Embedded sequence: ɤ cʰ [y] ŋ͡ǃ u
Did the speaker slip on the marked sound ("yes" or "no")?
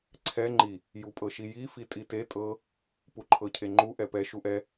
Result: yes